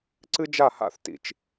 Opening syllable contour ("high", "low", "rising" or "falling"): high